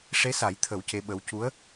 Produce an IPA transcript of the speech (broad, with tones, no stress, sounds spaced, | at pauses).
ʂ e˧˥ s a˨˩˦ j t̪ʰ ə˨˩˦ w c e˧˥ ɓ ə˧˥ w c u˧˥ ə̯